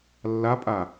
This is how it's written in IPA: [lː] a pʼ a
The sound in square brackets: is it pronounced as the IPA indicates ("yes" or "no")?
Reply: yes